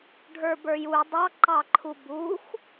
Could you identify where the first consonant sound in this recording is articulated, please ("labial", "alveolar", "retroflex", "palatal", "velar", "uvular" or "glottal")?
retroflex